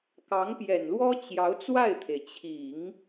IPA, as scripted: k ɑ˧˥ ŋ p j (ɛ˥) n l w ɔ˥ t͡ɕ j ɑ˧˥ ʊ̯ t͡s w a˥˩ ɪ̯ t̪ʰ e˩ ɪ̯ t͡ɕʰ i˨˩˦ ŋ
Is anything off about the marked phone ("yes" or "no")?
yes